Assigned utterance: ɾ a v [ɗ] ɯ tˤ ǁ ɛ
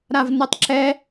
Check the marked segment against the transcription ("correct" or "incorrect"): incorrect